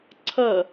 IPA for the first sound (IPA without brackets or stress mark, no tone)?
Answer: ǀʰ